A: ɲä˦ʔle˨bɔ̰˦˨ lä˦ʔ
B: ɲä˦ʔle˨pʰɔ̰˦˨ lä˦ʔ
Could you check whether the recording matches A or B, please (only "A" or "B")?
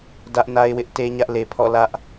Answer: B